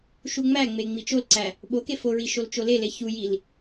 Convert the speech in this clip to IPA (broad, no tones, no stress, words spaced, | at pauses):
ʃuŋ͡mæŋ͡me ŋ͡mit͡ʃolǀæ | ɓoke foɹi ʃolt͡ʃolele çujil